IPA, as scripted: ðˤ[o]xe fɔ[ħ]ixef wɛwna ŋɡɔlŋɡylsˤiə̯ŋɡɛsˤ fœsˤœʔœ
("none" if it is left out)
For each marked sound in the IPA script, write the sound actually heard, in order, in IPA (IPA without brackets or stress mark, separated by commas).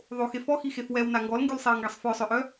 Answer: o, x